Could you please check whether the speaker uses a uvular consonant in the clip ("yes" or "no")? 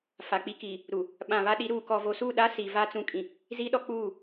no